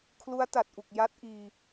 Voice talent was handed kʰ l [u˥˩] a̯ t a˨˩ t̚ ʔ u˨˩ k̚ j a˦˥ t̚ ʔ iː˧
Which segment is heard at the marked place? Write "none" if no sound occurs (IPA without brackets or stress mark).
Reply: u˦˥